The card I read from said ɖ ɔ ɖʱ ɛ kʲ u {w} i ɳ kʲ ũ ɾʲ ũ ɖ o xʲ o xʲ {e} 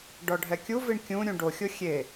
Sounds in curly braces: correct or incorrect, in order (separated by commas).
incorrect, correct